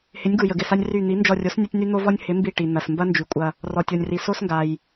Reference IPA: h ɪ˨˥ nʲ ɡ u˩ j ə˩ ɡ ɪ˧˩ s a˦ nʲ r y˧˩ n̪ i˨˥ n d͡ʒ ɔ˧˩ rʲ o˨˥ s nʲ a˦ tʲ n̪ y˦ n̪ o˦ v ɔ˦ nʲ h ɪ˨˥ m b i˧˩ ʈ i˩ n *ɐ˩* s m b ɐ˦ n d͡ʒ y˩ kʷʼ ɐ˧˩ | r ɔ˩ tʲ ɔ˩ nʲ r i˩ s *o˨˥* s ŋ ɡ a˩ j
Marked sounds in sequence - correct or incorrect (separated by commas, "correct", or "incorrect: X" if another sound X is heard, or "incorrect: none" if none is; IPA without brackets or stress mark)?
correct, incorrect: o˦